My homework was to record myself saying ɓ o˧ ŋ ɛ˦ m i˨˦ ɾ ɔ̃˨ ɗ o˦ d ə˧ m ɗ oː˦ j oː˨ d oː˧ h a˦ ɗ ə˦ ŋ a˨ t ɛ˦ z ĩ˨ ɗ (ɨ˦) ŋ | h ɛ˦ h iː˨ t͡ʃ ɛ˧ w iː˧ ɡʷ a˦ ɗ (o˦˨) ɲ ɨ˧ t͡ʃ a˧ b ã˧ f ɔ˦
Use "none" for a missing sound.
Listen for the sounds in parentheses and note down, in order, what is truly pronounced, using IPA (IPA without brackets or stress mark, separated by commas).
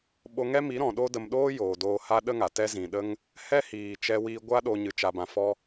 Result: ə˦, o˧